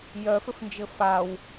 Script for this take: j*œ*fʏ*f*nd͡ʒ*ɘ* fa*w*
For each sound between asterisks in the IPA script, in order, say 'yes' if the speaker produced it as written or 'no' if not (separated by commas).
yes, yes, yes, yes